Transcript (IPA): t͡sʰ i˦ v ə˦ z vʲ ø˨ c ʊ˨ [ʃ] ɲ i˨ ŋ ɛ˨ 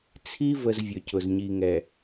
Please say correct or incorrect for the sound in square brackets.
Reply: incorrect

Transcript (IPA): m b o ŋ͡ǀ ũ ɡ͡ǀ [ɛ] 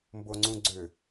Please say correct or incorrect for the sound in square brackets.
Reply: incorrect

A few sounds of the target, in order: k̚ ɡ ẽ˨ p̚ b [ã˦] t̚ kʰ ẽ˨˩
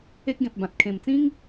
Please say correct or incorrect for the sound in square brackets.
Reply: incorrect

